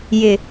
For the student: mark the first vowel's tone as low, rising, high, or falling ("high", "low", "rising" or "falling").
low